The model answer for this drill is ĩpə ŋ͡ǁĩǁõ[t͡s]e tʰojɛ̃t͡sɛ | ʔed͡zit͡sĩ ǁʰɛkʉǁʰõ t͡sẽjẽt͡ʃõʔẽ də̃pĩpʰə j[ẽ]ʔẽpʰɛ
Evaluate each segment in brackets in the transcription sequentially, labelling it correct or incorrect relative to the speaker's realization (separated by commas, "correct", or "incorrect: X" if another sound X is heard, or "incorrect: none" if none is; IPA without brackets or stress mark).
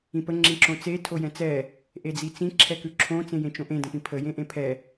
correct, correct